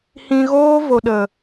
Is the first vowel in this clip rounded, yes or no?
no